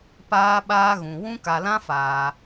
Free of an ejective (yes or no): yes